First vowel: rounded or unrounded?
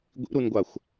unrounded